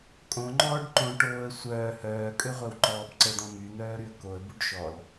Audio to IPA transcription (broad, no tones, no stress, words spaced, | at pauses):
kʼõŋ͡ǃɔːɖ ǃõʈoːə̯ sʷœː hœːkʼøʁʷœwǃɔːb ǀəd̪ɔ̃ myn̪œːɾyə̯ koə̯buɖ ʃɔl